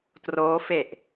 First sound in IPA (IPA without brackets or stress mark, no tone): t